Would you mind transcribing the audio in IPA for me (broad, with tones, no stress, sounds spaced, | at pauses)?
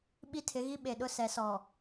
ɓ i˦ tʰ ɪ˨˦ ɣ i˦ ɓ e˨ ɗ ʊ˦ s ɛ˨˦ s ɔ˨